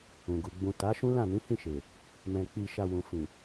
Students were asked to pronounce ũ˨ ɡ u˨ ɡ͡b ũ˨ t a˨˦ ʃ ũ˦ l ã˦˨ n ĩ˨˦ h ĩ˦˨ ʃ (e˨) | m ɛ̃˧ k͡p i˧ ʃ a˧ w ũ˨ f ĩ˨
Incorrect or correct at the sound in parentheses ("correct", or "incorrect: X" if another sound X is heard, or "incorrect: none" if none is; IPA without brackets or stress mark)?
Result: correct